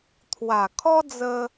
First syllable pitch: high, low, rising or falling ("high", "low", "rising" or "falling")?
low